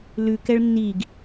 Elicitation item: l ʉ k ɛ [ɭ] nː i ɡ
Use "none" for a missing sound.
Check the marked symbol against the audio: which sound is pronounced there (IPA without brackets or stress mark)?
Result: ɭ